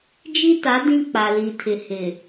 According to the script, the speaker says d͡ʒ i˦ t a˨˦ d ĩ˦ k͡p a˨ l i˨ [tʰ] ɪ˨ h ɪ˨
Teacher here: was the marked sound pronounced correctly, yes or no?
yes